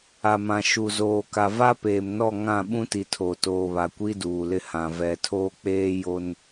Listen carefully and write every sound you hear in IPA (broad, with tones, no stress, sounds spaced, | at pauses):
a˨ m ã˨ ʃ u˨ z oː˨ k a˨ v a˦ p eː˨ m n ɔ˦˨ ŋ ã˦˨ ɓ ũ˦ t i˨ tʰ o˨ t oː˨ β a˨ kʷ i˦ d uː˨ l ɪ˦ h ã˨ v ɛ˨ tʰ oː˦ k͡p eː˦ j o˦ n